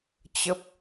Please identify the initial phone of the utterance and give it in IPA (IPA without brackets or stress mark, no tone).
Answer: t͡ɕ